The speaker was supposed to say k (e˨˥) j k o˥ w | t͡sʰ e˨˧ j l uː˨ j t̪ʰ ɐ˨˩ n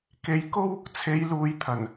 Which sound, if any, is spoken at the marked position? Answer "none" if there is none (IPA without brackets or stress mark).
e˨˥